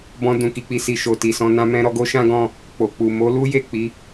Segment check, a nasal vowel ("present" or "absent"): present